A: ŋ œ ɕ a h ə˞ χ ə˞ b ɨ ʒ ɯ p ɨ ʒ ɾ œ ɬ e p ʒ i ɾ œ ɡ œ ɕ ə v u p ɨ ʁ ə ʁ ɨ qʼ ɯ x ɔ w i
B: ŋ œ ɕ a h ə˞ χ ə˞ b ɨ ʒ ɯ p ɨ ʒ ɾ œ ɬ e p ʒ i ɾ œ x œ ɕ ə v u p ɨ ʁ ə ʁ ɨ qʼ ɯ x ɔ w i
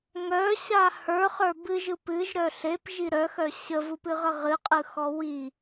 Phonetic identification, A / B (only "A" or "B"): B